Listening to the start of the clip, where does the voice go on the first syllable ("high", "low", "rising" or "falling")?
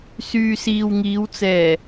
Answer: low